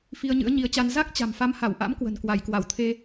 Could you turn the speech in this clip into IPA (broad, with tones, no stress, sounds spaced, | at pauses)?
f i˧ ə̯ ɲ ɨ̰˧˥ ə̯ ɲ i˨˦ ə̯ t͡ɕ a˧ n z a˦˥ k̚ t͡ɕ a̤˨˩ m f a˨˦ m h a˧˩ w ʔ a̰˧˥ m k w ə̤˨˩ n k w a˧˩ j k w a˧˩ w t̪ʰ e˧